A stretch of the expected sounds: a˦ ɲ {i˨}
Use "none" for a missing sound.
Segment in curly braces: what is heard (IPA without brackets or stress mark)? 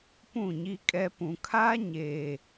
e˨